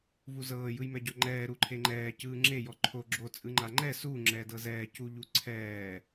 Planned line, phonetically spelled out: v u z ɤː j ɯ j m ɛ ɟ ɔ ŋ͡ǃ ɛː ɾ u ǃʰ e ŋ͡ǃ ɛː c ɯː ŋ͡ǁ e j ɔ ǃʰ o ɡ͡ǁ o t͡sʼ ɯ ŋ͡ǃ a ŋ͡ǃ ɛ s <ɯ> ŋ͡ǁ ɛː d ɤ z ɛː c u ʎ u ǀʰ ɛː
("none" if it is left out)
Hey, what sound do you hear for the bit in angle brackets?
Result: u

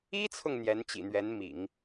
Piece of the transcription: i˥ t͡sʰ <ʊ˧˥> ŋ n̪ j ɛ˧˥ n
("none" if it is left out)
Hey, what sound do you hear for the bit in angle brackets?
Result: ʊ˨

